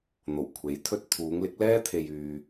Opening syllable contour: low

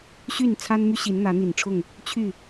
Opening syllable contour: falling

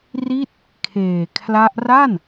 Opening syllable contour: falling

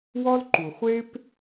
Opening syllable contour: high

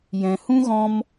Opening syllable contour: low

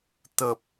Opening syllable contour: low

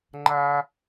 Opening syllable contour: high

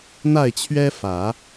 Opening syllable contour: falling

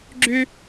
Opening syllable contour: high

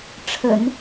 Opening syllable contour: low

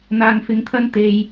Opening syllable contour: low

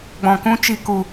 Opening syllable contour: low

